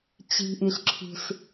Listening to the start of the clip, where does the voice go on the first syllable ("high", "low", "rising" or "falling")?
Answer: low